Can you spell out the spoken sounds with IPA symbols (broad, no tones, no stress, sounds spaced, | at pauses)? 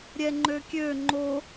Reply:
ɾʲ ɛ ŋ͡ǃ ø kʲ ø ŋ͡ǃ o